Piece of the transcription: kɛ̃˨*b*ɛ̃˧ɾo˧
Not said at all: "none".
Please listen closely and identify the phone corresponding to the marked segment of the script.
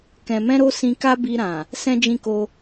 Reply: m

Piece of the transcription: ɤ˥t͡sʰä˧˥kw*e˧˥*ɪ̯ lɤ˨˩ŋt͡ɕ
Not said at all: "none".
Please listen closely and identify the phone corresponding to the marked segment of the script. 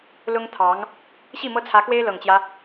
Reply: e˥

